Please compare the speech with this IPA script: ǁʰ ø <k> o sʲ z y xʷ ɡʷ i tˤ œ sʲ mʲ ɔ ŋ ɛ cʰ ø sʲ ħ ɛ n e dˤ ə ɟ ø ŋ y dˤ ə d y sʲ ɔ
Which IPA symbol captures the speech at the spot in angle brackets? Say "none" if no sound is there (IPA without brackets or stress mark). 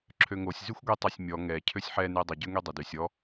ŋ